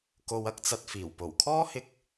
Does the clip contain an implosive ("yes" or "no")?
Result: no